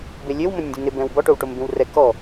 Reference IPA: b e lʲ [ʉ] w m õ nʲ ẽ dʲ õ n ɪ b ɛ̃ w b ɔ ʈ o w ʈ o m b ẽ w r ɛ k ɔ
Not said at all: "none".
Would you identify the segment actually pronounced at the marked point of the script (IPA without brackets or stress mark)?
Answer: ø